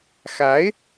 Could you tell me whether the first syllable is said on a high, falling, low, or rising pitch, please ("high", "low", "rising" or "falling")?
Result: rising